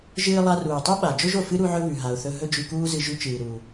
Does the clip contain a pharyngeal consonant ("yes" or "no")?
yes